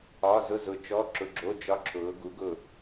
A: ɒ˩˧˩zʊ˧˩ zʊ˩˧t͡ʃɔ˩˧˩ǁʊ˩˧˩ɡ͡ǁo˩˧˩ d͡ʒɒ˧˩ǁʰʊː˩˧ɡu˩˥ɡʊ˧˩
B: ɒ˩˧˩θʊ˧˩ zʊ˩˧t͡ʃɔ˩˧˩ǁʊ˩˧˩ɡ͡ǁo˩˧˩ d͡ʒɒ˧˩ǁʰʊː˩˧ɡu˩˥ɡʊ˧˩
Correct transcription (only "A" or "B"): A